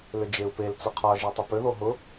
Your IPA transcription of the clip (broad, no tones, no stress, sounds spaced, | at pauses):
l ʏ d͡ʒ e u̯ p e l t͡s ʊ qʰ ɒ ʒ e tˤ ʏ p ʏ ð o ɦ ʊ